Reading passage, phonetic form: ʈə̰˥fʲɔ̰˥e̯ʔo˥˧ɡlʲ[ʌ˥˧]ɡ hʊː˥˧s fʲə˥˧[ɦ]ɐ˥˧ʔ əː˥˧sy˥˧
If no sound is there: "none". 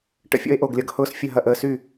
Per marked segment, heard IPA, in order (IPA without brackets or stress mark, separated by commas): ʌ˥˧, ɦ